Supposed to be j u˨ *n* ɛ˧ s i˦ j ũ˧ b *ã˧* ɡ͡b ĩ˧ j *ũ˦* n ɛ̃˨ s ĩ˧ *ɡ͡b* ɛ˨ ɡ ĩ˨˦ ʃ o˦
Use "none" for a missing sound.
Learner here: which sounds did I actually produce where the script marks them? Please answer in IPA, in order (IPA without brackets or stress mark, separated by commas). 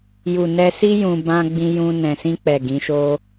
n, ã˧, ũ˧, k͡p